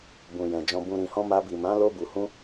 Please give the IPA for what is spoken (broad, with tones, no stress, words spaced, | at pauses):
bũ˨jɛ̃˨ d͡ʒɔ̃˨bũ˨ɾĩ˨hɔ̃˧ ma˧bi˨mã˨˦ lo˧bu˨ hũ˧